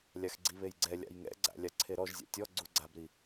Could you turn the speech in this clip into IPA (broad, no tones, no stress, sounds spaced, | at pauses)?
lʲ a x ɡ͡ǀ i β e j ɡ͡ǀ ɛ lʲ a̰ j ŋ ɛ̰ ɡ͡ǀ a̰ lʲ a ǀʰ e ɾ ɔ ʒ zʲ a̰ tʲ ɔ ɡ͡ǀ u ɡ͡ǀ a b ɾ i